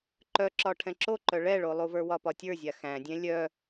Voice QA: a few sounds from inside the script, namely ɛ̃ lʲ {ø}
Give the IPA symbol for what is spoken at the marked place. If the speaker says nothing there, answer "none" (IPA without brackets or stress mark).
œ